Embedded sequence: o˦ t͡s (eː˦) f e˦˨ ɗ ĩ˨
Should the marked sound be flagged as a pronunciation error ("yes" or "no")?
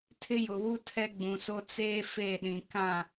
no